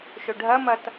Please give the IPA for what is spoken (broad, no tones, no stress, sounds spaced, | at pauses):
ʃ ɵ ɖʱ ɐ m ɐ t